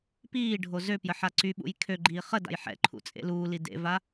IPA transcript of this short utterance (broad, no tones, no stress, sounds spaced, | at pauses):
p iː ɖʱ o z ø p j ə ħ a ǀ y ɓ ṵ j kʰ ø ɡ͡ǃ iː χ ə d a̰ j ħ ɛ̰ ǃʰ ṵ t͡sʼ ḛ l uː l i d ḛ v a